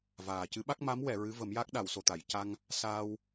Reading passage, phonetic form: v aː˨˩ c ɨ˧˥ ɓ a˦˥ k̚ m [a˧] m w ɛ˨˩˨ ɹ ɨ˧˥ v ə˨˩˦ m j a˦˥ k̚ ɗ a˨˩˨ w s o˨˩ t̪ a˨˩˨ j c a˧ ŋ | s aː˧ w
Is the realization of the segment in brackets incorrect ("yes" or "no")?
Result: yes